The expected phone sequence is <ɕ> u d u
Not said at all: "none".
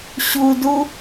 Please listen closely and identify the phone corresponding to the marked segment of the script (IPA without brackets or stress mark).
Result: ɕ